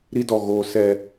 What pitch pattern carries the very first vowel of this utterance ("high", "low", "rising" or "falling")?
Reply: high